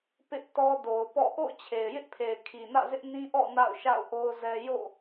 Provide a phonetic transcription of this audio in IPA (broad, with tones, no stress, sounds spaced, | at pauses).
p ɪ˦ ʔ t ɔ˦ d o˨ ʊ̯ p ɔ̰˦˨ ʔ o̰˦˨ ʊ̯ t͡ɕʰ e˨ ɪ̯ j ɪ˦ ʔ pʰ e˨ ɪ̯ kʰ i˨ n ä̰˦˨ z ɪ˦ ʔ n ĩ˦ ʔ ɔ̰˦˨ n a̰˦˨ ʊ̯ ʃ a̰˦˨ ʊ̯ ʔ o˦ ʊ̯ z ɛ˦ j o̰˦˨